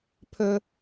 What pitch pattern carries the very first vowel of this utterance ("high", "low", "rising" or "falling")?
high